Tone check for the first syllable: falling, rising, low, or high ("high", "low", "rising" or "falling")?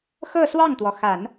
falling